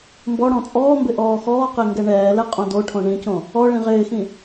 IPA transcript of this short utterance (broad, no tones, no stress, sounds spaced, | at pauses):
m b ɔ ɽ ɔ̃ t͡sʼ ɔː m b ɪ ʔ ɔː x ɔː q e ŋ ɡ ɛ ɳ ɛː l ɛ qʼ õ d o ʈʰ õ ɳ ĩ c õ | ɔ ɭ ĩ ʁ ɪː x ĩ